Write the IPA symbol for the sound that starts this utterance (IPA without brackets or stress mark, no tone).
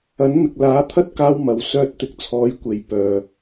ɐ